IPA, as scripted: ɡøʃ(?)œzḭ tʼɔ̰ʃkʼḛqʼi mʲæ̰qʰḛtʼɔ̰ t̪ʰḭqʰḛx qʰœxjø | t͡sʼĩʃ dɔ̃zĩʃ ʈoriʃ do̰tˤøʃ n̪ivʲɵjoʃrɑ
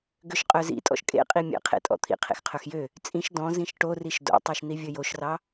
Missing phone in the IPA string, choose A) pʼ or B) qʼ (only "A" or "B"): B